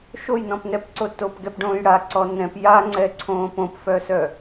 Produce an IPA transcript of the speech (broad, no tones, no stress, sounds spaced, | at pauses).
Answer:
ʃ o j n ɔ̃ p n ɛ p ǀ o t o p ɡ ɛ p ɖ õː j ɽ a ǀ ɔ n ɛ̃ p j a ŋ͡ǀ ɛ ǀʰ õː p õ p f œ s œ